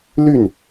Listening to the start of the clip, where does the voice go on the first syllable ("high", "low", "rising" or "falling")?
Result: falling